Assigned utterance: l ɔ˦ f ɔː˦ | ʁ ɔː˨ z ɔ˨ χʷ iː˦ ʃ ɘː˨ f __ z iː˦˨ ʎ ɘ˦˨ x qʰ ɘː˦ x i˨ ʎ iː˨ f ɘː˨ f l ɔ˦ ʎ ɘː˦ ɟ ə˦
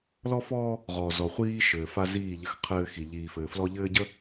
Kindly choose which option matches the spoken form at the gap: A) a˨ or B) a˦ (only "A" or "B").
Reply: B